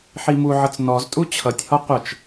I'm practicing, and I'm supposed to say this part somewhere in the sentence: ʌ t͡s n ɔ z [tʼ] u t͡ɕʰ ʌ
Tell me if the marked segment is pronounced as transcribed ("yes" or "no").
yes